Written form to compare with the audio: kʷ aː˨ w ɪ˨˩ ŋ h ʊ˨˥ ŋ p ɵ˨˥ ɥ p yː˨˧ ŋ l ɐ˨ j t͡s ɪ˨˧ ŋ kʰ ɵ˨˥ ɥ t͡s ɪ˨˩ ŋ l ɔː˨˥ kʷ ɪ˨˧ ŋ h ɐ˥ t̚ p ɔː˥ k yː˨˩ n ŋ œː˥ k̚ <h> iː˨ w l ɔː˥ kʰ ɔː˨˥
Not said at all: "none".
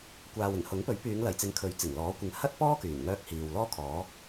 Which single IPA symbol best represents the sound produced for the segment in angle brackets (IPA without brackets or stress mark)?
h